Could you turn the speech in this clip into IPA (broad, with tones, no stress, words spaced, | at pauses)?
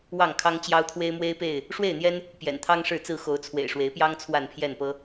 wɑ˥˨ŋkʰɑ˦ŋt͡ɕjɑ˦ʊ̯ t̪ʰwe˦ɪ̯mwe˦ɪ̯pe˥˨ɪ̯ | ʂwe˥˨ɪ̯n̪jɛ˦n | pjɛ̰˨˩nt̪ʰɑ˦ŋ ʂɻ̩˥˨t͡sɹ̩˥˨ xo˨˦ʊ̯t͡sʰwḛ˨˩ɪ̯ʂwe˨˦ɪ̯pjɑ˦ŋ t͡sʰwa˥˨npʰjɛ˥˨npɤ˦